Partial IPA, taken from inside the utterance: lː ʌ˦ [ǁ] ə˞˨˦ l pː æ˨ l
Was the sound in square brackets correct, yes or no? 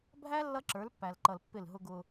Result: yes